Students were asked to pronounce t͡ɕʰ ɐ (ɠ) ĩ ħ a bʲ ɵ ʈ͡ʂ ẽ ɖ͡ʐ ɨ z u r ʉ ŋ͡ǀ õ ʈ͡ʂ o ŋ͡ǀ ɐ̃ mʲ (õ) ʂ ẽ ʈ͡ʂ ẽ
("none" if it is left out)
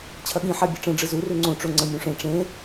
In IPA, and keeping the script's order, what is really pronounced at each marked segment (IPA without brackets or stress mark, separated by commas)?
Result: ɠ, ũ